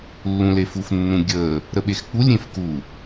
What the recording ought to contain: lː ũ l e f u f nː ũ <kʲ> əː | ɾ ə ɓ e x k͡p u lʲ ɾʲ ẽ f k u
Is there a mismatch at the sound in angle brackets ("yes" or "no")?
yes